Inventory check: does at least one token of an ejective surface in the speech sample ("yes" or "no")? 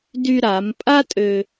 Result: yes